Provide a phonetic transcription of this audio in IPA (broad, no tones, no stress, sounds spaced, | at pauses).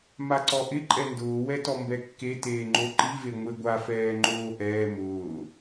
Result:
m a ǀ ɔ ʔ ɪ ǃʼ ɛ n d ʊː w ɛ t ɔ m b ɛ kː e t eː ŋ͡ǃ o ǃ i v e ŋʷ e ɡʷ a f ɛː ŋ͡ǃ oː ʔ ɛː m ʊː